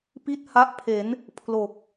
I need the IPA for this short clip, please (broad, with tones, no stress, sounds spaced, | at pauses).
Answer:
p i˥˩ t̚ h a˦˥ ʔ pʰ e˩˦ n | pʰ l o˨˩ k̚